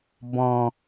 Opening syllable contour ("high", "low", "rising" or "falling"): low